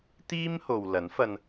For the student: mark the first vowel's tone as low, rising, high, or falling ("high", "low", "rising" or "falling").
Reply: high